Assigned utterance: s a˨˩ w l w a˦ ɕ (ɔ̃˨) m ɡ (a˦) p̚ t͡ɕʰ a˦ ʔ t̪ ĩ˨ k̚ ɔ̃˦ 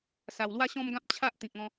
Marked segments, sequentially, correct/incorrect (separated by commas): incorrect, incorrect